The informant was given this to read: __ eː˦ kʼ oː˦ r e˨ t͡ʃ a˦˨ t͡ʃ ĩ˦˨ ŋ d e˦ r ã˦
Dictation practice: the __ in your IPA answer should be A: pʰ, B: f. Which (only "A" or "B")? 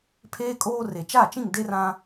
A